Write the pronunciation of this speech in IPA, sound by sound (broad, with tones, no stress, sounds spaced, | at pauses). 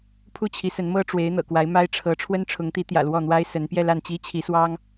pʰ u˥˩ t͡ɕʰ i˧˥ s ə˧˥ n m ɤ˥ ʈ͡ʂ w e˧˥ ɪ̯ n̪ ɤ̰˨˩ k w a˧˥ ɪ̯ m a˥ ɪ̯ ʈ͡ʂʰ ɤ˧˥ ʈ͡ʂʰ w ə˥ n ʈ͡ʂʰ ʊ˧˥ ŋ t̪ i˧˥ t̪ j ä̰˨˩ l w ɔ˥˩ n̪ w a˥ ɪ̯ s ə˧˥ n p j ɛ˥˧ l a˥˩ n t͡ɕ i˥ t͡ɕʰ i˧˥ s w ɑ˥ ŋ